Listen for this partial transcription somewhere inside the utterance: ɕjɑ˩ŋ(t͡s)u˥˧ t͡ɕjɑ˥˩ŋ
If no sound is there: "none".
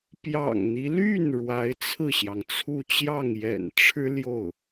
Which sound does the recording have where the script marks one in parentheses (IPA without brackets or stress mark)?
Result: t͡sʰ